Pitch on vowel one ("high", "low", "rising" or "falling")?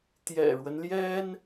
low